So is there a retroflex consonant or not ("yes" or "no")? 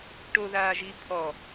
yes